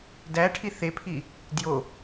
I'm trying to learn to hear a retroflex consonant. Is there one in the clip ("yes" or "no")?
yes